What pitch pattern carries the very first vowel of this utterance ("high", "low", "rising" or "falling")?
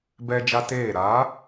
high